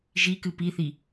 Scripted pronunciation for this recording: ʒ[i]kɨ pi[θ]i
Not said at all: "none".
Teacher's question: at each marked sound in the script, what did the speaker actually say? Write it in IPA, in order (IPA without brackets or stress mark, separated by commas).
i, θ